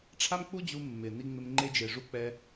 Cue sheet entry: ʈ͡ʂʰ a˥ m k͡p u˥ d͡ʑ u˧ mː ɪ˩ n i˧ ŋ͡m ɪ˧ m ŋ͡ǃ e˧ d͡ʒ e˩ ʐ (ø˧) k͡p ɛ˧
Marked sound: incorrect: u˧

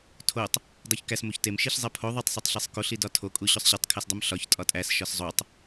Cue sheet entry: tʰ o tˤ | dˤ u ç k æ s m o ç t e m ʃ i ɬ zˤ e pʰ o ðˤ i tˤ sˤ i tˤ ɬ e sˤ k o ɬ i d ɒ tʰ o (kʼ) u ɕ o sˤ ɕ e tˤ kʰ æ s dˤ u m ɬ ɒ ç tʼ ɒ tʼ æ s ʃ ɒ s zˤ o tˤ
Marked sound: correct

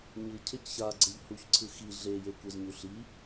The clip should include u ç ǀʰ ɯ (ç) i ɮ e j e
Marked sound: incorrect: x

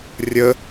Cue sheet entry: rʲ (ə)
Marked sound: correct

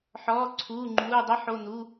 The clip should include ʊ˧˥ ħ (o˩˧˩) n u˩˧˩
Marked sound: correct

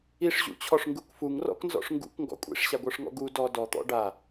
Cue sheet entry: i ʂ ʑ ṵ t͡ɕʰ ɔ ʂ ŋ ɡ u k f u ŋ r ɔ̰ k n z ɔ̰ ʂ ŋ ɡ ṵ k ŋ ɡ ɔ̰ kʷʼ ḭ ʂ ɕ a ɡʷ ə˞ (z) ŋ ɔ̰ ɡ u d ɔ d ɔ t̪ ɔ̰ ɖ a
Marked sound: incorrect: ʂ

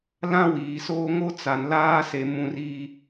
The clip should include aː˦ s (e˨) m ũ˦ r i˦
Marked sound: correct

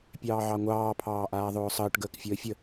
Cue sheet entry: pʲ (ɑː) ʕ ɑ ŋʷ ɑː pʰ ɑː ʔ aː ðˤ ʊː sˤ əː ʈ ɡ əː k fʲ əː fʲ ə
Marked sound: correct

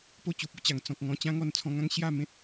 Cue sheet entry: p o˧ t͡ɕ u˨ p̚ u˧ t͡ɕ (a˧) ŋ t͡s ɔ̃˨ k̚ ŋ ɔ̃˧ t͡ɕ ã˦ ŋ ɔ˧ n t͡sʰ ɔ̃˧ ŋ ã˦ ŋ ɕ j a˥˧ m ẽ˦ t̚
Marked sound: incorrect: a˨˩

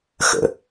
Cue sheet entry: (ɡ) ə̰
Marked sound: incorrect: x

